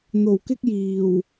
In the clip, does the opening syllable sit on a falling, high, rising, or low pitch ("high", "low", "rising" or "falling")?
low